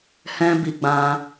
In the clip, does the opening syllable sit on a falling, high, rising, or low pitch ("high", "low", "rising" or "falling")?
high